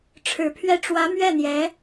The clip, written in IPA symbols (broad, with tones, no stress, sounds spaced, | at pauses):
ʈ͡ʂʰ ɻ̩˨˩ pʰ ɥ ɛ˥˩ ʈ͡ʂ w ä˧˥ m ɥ ɛ˥˩ n̪ j ɛ˧˥